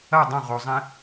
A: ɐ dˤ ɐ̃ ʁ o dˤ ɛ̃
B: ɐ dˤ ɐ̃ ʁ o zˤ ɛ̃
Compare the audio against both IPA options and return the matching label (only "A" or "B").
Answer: B